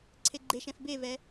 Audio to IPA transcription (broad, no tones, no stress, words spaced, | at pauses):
ǀʰeɡ͡ǃeʃɛ̃f bevɛ